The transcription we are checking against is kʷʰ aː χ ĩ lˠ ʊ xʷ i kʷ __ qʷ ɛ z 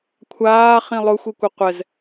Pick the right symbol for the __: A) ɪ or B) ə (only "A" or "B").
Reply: A